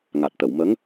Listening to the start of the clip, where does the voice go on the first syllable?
low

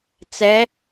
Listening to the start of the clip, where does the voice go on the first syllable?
rising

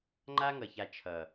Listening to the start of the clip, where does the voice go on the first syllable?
high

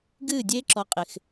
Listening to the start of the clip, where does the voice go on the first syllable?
falling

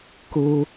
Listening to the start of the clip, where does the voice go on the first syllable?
high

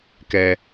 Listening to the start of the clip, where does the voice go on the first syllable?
low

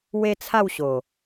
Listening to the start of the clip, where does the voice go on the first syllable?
high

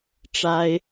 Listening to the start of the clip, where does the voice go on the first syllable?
high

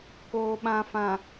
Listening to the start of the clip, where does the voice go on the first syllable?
low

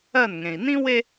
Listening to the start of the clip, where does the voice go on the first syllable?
falling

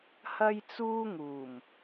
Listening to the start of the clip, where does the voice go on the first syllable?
high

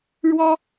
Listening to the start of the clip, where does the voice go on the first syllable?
high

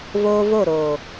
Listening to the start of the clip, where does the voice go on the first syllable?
high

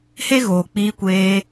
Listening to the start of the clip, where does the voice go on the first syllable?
high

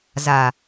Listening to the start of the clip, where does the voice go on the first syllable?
low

